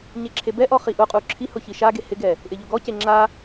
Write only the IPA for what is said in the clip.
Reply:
ɲeǁʰebɛʔɔ χiʔʊqʼu ǁʰihʊ çiʃaɡe hɪɡɛ | ʔɪʎʊɡɔce ŋ͡ǁa

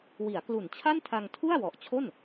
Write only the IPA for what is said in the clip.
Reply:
wi˩˦a̯klu˨˩nt͡ɕʰa˥˩n tʰa˧ŋtʰu˥˩a̯wɔ˨˩ʔt͡ɕʰo˥˩n

